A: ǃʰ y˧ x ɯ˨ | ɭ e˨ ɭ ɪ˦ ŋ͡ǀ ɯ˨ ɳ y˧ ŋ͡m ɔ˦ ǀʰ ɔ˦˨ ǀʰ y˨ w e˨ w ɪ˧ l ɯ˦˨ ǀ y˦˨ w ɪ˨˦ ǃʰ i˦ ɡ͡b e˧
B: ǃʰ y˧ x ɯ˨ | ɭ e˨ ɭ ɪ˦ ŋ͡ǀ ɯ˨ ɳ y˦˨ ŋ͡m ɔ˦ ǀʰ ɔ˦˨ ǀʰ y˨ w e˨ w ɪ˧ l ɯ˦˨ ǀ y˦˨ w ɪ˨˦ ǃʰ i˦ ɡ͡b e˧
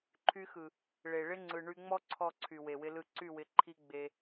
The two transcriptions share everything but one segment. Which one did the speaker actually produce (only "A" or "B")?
A